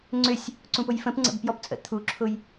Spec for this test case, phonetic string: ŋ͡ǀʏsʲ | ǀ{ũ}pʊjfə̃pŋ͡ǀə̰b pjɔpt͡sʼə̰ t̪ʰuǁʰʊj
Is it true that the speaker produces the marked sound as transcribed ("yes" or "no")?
yes